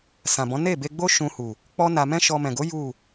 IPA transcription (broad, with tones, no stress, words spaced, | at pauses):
sã˨bɔ̃˨˦ ne˦˨be˧ɡ͡bo˦ ʃũ˧hu˨ | k͡pɔ˦na˧ mɛ̃˦ʃɔ˧mɛ̃˨ ɡo˨˦ ju˦˨